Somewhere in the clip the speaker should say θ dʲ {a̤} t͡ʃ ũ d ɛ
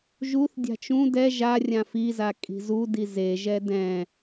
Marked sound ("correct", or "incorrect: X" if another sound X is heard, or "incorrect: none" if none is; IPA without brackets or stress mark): correct